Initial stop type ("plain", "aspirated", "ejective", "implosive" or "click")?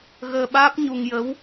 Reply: implosive